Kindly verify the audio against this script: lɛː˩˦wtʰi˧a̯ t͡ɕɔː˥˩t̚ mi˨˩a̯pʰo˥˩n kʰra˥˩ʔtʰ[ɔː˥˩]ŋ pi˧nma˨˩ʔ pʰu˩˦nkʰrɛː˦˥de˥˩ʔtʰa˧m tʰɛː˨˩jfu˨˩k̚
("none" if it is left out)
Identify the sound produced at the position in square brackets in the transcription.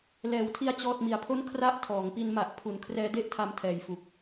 ɔː˩˦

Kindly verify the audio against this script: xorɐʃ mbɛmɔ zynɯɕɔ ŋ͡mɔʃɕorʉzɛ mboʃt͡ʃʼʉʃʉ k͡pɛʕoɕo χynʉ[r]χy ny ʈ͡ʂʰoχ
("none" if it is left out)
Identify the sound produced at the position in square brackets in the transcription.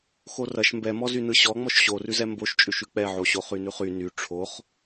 none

